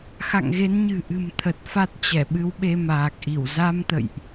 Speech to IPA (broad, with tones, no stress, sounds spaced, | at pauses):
x a̰˧˨ ŋ ɣ e˨˦ n ɲ ɨ̤˨˩ ʔ ɨ̤˨˩ m t̪ʰ ə˨˩ t̚ f a˦˥ t̚ t͡ɕ ɛ˧˩ ɓ ɨ˨˦ w ɓ e˧ m aː˨˩ k̚ ʔ i˧˩ w z a˧ m t̪ ə̰˧˨ j ʔ